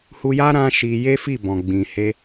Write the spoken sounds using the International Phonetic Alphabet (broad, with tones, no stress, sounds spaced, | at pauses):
h u˧ j a˦ ɾ ã˦ ʃ i˧ j e˦ f i˦˨ b ɔ̃˨ ɡ͡b ĩ˨ h e˧